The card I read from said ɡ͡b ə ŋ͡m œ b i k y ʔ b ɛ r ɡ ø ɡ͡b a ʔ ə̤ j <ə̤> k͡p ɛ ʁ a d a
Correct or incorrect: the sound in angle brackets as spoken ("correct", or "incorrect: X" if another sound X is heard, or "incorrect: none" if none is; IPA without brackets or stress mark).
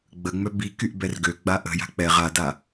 incorrect: a̤